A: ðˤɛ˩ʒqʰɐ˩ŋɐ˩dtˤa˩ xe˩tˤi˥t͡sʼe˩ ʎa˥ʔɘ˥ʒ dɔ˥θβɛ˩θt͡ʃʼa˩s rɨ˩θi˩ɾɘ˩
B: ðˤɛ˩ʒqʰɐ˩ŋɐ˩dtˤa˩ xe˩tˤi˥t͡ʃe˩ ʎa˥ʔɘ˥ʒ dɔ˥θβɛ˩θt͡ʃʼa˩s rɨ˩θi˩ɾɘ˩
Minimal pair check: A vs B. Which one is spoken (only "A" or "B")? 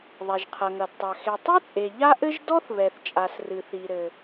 A